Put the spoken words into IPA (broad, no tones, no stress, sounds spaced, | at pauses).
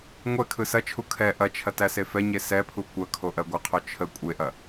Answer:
ŋʷ ɛ kʰ ɯ s ɐ t͡ʃʰ u kʰ ɛ ʔ ɐ t͡ʃʰ ɐ t æ s e f ɛ ɲ e s ɛ pʰ u kʷ ɐ kʰ o ʔ ɜ ɡʷ ɐ qʰ o t͡ʃʰ ə kʷʼ e ʔ ɐ